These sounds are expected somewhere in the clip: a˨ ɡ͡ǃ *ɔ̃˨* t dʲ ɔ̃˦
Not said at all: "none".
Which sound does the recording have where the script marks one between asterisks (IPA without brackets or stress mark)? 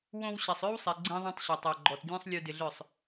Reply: ɔ˨